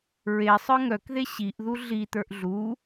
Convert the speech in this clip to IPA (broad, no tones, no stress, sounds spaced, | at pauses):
ɹ e sˤ ə˞ ŋ œ k ð e ɕ i ʔ ð u ɮ i t̪ ə˞ ʔ ɮ u